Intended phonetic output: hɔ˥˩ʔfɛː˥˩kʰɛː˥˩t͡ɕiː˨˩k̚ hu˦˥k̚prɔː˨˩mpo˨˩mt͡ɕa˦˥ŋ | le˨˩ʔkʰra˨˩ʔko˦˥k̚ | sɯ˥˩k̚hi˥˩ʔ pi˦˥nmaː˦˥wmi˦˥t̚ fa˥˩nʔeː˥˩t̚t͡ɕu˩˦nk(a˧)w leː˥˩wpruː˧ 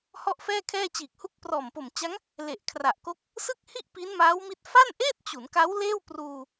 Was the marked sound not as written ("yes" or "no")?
yes